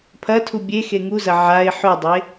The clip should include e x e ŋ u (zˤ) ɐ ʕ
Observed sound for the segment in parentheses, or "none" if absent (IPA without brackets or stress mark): z